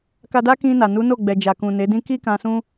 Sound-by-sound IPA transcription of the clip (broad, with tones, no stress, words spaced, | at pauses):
ka˧da˦ kĩ˧na˨ nu˨˦no˦˨ɡ͡bɛ˨d͡ʒa˨ kũ˨ne˨˦dĩ˦ ki˦kã˧ sũ˦